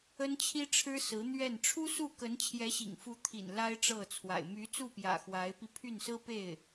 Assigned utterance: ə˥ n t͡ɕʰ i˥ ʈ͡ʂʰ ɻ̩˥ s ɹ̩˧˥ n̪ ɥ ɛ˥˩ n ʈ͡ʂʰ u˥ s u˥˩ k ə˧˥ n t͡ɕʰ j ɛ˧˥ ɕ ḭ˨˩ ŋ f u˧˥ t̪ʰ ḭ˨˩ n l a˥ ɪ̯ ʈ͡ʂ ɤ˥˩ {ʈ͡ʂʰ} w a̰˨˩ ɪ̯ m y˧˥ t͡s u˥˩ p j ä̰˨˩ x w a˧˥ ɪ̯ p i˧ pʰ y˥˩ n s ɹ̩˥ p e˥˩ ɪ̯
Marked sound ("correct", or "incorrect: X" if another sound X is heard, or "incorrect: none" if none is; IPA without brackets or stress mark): incorrect: t͡sʰ